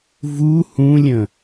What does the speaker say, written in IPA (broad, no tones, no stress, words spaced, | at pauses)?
vu hũlʲə̃